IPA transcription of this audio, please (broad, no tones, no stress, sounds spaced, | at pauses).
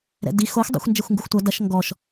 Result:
ɾ ɛ̰ d i x o xʷ dˤ ɛ̰ xʷ n d͡ʒ ɛ xʷ ŋ ɡ u xʷ tʷ ɐ d ɐ ʃ ŋ ɡ ɔ ʃ